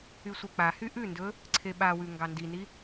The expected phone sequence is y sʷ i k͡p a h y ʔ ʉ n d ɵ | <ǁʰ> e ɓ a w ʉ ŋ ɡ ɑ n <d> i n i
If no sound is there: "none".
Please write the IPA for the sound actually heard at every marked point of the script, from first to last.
ǀʰ, d

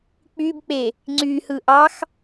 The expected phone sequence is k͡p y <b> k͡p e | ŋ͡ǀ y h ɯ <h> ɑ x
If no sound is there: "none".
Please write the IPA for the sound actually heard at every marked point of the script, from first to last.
b, ʔ

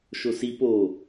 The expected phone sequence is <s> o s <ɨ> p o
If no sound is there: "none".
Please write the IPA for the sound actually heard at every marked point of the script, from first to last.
ʃ, i

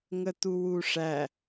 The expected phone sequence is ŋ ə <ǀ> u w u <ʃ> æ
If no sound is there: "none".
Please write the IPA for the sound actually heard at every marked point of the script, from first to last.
t̪, ʂ

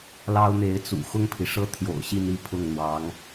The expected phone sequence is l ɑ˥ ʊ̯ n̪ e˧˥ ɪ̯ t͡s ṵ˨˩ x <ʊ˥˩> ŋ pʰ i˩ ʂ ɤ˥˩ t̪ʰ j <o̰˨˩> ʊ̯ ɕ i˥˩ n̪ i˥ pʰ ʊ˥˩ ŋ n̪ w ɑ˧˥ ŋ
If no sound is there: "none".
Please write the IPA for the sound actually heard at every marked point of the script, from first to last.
ʊ˥˩, o̰˨˩

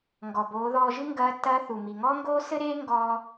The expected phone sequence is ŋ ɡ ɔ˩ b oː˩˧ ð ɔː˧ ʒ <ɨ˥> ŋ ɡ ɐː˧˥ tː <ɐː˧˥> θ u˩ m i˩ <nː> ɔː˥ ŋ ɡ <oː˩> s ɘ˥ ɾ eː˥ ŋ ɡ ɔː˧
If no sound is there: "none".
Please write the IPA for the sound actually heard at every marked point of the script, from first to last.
ɨ˥, ɐː˧˥, ŋ, oː˥

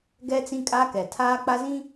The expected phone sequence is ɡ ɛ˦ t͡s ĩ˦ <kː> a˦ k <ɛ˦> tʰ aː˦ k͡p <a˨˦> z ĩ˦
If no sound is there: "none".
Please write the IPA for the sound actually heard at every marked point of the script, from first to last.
kʼ, ɛ˨, a˦

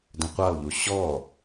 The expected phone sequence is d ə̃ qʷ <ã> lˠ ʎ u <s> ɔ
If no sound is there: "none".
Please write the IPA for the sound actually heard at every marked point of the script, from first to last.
a, ɕ

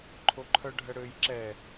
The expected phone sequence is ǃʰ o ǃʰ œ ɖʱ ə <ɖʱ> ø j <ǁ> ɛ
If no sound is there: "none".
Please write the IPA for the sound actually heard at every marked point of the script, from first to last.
ɽ, ǁ

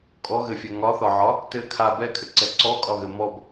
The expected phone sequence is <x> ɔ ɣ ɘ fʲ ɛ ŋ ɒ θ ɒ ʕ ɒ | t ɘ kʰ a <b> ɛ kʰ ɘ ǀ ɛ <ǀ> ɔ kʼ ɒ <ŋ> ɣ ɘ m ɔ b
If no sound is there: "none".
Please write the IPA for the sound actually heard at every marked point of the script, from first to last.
kʼ, b, ǀ, none

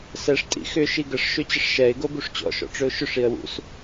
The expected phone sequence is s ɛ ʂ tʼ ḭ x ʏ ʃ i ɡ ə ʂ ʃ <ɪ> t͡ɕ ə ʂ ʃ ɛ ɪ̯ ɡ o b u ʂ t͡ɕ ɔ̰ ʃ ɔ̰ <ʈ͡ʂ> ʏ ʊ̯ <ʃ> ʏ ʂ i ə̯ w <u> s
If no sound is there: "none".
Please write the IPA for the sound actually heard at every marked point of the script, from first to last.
ʏ, ʈ͡ʂ, ʃ, ṵ

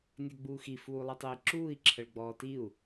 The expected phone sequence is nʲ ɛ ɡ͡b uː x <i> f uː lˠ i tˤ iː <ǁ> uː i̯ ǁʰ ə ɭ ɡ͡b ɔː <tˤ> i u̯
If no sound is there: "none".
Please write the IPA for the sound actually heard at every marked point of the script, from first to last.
i, ǁ, t

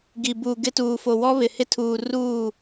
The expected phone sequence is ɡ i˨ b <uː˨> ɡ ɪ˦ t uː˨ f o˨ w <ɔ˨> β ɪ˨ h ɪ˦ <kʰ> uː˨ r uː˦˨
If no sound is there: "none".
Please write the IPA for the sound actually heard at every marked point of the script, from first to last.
uː˨, ɔ˦, tʰ

